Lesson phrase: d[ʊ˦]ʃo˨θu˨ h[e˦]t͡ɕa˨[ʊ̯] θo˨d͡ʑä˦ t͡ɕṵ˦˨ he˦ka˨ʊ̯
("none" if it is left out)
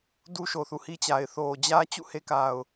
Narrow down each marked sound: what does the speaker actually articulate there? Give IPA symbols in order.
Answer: u˦, i˦, ɪ̯

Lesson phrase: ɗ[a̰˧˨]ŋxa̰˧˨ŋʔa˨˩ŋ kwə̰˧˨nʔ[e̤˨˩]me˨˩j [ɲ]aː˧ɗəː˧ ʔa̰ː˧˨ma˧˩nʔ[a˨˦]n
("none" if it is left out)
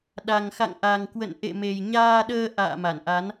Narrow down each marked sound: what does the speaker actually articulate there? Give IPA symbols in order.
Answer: a˨˩, ḛ˧˨, ɲ, a˨˦

